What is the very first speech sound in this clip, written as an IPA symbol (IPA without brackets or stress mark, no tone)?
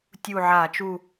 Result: tʲ